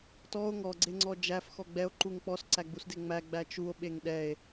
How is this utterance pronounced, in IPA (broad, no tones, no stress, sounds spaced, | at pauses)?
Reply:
t ɔ o̯ ŋ ɔ ɡ͡ǀ e ŋ͡ǀ ɔ d͡ʒ æ f x ɔ ɡ͡b ɛ o̯ ǃ u ŋ k͡p ɔ s ǀ æ ɡ͡b u s d e ŋ͡m æ ɡ͡b æ t͡ʃ u o̯ ɓ e ŋ ɗ ɛ e̯